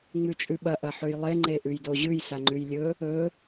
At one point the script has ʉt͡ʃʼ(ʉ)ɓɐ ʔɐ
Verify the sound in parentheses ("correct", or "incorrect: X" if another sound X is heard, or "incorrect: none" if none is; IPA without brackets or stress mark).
correct